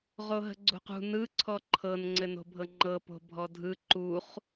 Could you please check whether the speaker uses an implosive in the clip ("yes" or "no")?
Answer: no